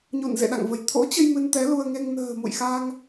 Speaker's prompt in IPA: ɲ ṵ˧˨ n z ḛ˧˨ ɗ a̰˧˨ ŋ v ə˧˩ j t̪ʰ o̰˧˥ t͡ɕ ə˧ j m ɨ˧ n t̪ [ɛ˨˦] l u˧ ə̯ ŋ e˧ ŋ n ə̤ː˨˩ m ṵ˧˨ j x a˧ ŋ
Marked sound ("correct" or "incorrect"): correct